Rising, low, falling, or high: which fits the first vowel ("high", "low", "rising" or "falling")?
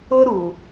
high